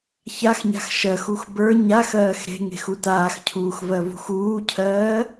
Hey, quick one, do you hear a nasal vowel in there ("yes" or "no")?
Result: no